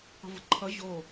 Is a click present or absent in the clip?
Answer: present